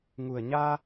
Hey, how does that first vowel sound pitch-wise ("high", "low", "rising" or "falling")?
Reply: low